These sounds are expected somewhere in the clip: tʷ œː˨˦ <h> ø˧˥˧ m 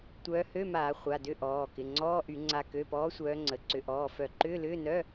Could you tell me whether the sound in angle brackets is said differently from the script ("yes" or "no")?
no